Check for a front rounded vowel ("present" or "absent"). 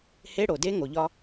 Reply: absent